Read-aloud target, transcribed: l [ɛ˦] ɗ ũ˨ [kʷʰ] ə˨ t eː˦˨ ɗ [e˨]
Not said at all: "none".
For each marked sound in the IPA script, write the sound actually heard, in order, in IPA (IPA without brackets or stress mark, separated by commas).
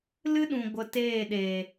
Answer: ɨ˦, ɡʷ, eː˨